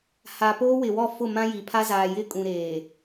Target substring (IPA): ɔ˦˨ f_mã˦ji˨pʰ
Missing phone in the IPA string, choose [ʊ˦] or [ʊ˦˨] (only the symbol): ʊ˦˨